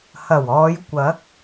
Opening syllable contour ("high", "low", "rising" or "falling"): low